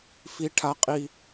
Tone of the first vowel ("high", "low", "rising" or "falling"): high